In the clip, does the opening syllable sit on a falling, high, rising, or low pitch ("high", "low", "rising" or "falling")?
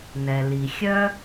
low